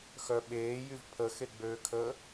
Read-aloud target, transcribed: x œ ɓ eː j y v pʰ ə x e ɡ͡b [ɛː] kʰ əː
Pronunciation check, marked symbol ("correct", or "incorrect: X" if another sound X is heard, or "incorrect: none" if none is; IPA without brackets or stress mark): incorrect: øː